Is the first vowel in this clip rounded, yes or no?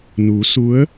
yes